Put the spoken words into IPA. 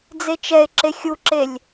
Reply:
d͡z e t͡ʃ ɛ e̯ ǁ e xʲ u ǁ e lʲ

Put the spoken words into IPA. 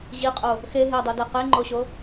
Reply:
ʑ i qʼ o | x e ɦ e dˤ o d ɛ q e ŋ͡ǃ o ɕ o

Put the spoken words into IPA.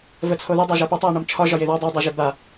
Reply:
v ə t͡sʰ o ð i dˤ o ʒ a p o tˤ e ʊ̯ ɳ ɒ m t͡ʃʰ ɒ ʒ ɒ j e ð ɒ dˤ e dˤ e ʒ e b a

